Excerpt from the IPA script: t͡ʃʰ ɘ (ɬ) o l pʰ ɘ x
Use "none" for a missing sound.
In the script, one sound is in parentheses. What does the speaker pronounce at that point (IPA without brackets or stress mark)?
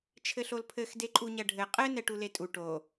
ɬ